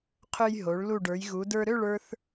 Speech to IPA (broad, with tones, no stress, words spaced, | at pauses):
qʰø˧jɦo˩˧ɭ lu˧˩ɖə˞˩˧jɣu˩˧ də˞˧ɾø˥˧ɭə˞˧θ